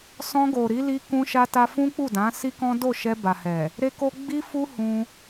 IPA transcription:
sɔ̃˧ɡo˨ɾi˨˦ li˧ kũ˦ʃa˦ta˦ fũ˦k͡pu˦˨dã˨˦ si˦kɔ̃˦ do˦˨ʃɛ˧ba˨hɛ˨ | ɾe˦ko˦ ɡ͡bi˦fu˦ hũ˧

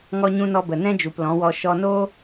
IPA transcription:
ŋɔ˦ɲũ˦ nɔ˧bə˨nɛ̃˦d͡ʒu˨p lɔ̃˨˦wɔ˧ ʃɔ˧noː˦

